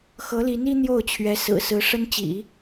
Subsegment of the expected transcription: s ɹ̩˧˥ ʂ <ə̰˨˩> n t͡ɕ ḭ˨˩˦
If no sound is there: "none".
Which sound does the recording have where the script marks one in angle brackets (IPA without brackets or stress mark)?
ə˥